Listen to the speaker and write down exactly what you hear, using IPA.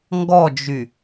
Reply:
ŋ ɡ ɔ d͡ʒ y

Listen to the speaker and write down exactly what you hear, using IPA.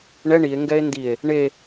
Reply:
ɳ ɛ ɳ i e̯ ŋ ɡ ɛ e̯ n d i e̯ | ɳ e

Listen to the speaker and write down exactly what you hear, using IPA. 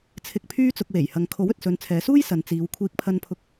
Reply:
t͡sʰ ɪ˨ k̚ pʰ yː˧ t͡s ʊ˨ k̚ w e˨˩ j h ɐ˨ ŋ kʰ o˨˥ w ɵ˨ t̚ s ɵ˨˧ n t͡sʰ ɛː˨˧ s uː˥ j s ɐ˨ n t͡s iː˨˧ w kʷʰ iː˧ k̚ pʰ ɐ˧ n pʰ ʊ˧ k̚

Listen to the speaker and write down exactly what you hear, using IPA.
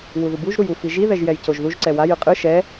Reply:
w u ð u b u ʒ ɾ u j u f i ʒ i ð ɛ ʒ j ɛ j c o ʒ ð u ʒ ǀ ɛ w a j ɯ qʼ ɯ ʃ ɛ

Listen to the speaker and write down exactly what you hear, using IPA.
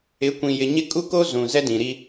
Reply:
ɪ˨˦ kʷ ĩ˨ j ɪ˨ ɲ ɪ˦ kʼ u˦ k o˦ z ũ˨ z ɛ˦ d ĩ˨ ɾ i˦

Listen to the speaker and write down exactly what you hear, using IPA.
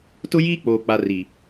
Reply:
t ʊ˦ j iː˦ k͡p oː˨ k͡p a˨ r i˨

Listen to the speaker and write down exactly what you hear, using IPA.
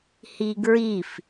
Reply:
h i ɡ ɹ i f

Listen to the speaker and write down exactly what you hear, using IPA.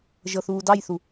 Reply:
ʒ ɤ θ uː d ɑ j θ u

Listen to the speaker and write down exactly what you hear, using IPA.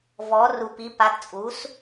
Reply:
v ɔ˩˥ r u˨˩ p i˩˥ p a˩˥ t t͡sʼ u˩˥ s

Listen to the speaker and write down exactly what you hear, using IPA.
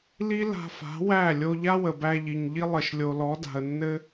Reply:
l i˦ l a̤˧ f a̤˨˦ w æ˦˨ lʲ o˧ ʎ a˦ w ə˨ b æ˧ ʎ i˨ ɲ ʎ i˦ lˠ ə˨ ʃ lʲ o˨ l ɔ˨˦ d a̤˨ ə̯ nː ɘ˦

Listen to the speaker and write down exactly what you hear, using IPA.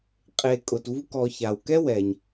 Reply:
qʼ e˩ kʼ ʊ˩ t v u˦ k ɔ˨ ç a˩ w k ɛ˥ w ɛ˩ ɲ

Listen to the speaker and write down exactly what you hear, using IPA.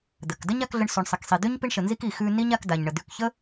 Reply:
d̪ ə˩ k d ə˥ ɲ a˥ k ɮ ə˦ ɳ s ʉ˨ ɳ sˤ ɛ˨ k sˤ i˨ d̪ ʉ˥ ɲ p i˦ ɳ ʃ ə˨ n z i˦ k i˨ x ʉ˦ n i˥ ɲ a˦ k d a˩ ɲ ɳ ə˩ d̪ ʉ˨ k ç ə˥

